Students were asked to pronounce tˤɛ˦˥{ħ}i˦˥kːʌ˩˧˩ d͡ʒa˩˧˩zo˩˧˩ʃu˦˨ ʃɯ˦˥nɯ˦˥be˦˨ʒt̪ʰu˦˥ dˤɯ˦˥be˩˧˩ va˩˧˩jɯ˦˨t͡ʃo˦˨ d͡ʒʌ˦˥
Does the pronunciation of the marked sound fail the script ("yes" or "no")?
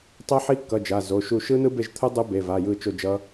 no